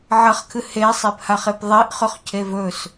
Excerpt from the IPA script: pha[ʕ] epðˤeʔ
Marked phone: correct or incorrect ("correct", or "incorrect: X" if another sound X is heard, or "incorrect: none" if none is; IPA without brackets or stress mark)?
incorrect: χ